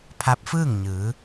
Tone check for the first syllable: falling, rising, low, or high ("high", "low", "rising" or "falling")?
rising